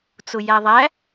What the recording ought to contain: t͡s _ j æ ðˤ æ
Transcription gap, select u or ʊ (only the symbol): ʊ